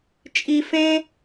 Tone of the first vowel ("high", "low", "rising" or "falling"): high